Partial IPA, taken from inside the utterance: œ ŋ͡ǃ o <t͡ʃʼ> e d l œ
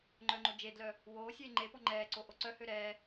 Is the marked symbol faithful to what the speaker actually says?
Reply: no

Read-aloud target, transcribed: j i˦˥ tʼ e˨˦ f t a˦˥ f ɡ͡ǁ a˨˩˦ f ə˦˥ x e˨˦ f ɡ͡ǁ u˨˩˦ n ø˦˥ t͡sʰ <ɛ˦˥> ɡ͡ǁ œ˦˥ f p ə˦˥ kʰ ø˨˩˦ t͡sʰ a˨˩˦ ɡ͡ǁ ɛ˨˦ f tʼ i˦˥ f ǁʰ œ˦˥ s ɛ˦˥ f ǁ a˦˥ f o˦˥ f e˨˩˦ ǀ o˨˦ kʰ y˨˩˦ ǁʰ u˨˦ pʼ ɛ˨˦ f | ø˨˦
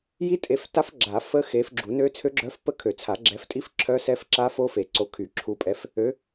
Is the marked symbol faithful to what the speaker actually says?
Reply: no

